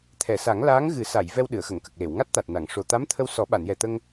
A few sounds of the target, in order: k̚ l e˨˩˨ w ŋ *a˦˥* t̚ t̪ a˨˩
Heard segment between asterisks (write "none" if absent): a˦˥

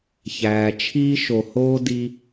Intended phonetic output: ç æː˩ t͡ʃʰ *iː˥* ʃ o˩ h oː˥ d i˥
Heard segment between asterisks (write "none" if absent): iː˥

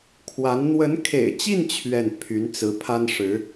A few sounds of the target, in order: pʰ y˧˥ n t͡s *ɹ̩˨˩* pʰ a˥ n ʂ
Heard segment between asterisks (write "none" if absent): ɹ̩˧˥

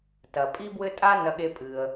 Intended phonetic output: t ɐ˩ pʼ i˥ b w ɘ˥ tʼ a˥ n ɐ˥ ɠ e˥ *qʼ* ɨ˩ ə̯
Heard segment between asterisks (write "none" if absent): pʼ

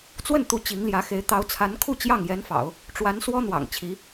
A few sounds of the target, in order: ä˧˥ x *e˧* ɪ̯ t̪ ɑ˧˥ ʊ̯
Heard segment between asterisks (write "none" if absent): e˧˥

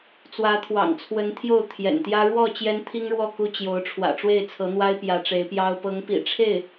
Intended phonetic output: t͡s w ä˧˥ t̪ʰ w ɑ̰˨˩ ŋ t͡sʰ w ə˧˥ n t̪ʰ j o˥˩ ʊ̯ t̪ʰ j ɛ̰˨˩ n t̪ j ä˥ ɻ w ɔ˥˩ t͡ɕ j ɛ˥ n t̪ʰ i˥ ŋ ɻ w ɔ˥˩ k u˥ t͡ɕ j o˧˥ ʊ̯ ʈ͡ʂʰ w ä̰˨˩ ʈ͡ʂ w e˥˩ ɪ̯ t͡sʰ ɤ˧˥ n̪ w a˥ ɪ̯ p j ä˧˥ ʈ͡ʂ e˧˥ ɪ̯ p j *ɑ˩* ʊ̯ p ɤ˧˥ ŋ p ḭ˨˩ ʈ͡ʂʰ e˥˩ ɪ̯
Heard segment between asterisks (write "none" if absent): ɑ˥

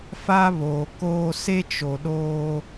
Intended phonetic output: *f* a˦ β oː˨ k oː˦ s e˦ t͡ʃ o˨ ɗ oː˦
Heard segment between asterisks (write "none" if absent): f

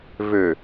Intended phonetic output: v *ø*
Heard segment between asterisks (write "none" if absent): ø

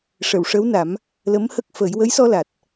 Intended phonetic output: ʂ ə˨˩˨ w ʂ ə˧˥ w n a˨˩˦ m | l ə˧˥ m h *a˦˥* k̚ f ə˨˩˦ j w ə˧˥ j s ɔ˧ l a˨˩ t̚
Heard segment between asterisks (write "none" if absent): ə˦˥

